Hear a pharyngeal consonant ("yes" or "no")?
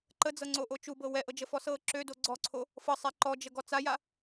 no